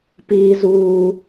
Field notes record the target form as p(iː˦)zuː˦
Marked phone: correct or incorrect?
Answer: correct